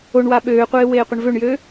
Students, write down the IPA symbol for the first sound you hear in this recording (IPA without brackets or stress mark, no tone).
o